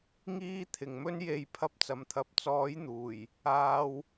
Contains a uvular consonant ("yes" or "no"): no